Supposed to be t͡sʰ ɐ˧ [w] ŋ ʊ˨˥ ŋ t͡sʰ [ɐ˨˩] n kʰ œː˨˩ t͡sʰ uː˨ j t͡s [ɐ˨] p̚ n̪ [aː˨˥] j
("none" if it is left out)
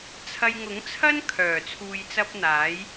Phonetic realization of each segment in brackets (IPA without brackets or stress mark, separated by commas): j, ɐ˥, ɐ˧, aː˨˥